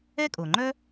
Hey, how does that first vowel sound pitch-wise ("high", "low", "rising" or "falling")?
high